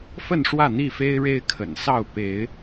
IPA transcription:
f ə˥˨ n ʂ w ä˥˨ n̪ i˥˨ f e˦ ɪ̯ ɻ e˦ ɪ̯ kʰ ə̰˨˩ n s ɑ˥˨ ʊ̯ p e˨˦ ɪ̯

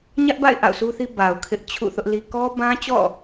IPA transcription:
ɲ ä˦ ʔ b a̰˦˨ ɪ̯ ʔ a̰˦˨ ʊ̯ sʰ u˦ θ i˦ b a˨ ʊ̯ kʰ ɪ˦ ʔ t͡ɕʰ ṵ˦˨ θ ʊ˦ ʔ l i˦ k ɔ˦ b ã˦ t͡ɕ ɔ̰˦˨

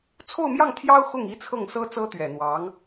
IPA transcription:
t͡sʰ o˥˧ ʊ̯ m j ɑ˥˩ ŋ t̪ʰ j ɑ˥ ʊ̯ x ʊ˥˩ ŋ i˥ t͡sʰ ɤ˥˩ ŋ s ɤ˥ t͡s ɤ˥ t̪ ɥ ɛ˨˩ n̪ w ɑ˧˥ ŋ

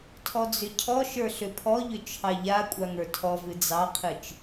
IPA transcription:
tʰ ɔ d͡z ʏ cʰ ɔ ʃ ə˞ ɬ ʏ pʰ ɔ ʎ ʏ t͡ʃʰ ɑ ʎ a kʷʼ a ŋ ə˞ tʰ ɔ v ɨ d͡z ɑ qʰ ɨ t͡ʃ

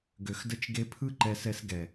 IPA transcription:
ɡ ø˨ x d ə˧ t͡ʃ ɡ e˧ pʰ ɯ˦ ǃ ɛ˧ s ɛ˧ s ɡ ɛ˨

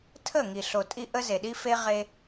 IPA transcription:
tʰ ə˦˨ ŋ i˨ ɬ o˨ tʼ i˧ ʔ ə˦ z e˨ ɗ i˦ f e˦ ʁ e˧

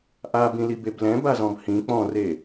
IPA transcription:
ʔ a b ĩ l i b e b l ɛ̃ b a z ɔ̃ b h ĩ k͡p ɔ̃ r e

